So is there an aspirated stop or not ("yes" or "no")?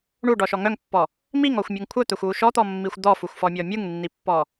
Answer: yes